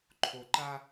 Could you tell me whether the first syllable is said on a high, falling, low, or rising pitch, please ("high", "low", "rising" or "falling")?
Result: low